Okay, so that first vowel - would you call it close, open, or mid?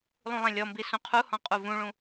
close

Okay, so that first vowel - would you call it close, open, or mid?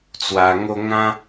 open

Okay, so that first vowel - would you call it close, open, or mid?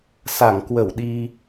open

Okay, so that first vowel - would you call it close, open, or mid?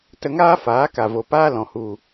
mid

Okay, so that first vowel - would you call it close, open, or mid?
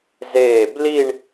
mid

